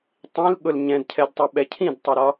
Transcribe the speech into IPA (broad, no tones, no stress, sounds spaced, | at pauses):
tˤ ĩ l ɠ ʊ l ɲ ɛ̃ d cʰ ɛ d tˤ ʊ ɓ ɛ cʰ ĩ d tˤ ɪ ɾ ɒ